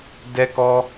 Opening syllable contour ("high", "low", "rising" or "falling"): high